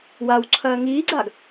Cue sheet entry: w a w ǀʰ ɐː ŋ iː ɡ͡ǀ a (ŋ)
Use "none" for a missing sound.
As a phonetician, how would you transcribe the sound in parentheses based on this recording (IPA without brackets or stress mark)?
ɡ